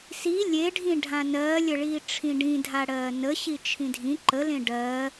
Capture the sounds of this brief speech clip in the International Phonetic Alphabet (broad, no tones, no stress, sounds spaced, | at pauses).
s i lʲ e ɖʱ ĩ ɖʱ ã n ɜː lʲ ə ɭ iː ʈ͡ʂʰ ĩ ɖ ĩ dʱ a ɽ ɜː n ə ɕ i t͡ʃʰ ĩ dʱ ĩ ǃ ə l ẽ ɖ ɜ